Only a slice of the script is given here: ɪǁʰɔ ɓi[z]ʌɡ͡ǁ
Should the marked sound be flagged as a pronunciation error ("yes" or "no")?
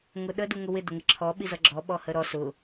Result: no